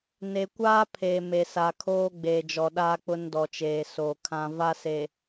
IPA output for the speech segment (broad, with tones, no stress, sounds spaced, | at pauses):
n e˨ kʷ aː˦ pʰ e˨ m e˨ s a˨ kʰ oː˦ ɡ͡b eː˨ d͡ʒ ɔ˨ ɗ aː˦ k͡p ʊ˦ n d ɔ˨ t͡ʃ eː˨ s oː˨ kʰ ã˦ v a˦ s e˨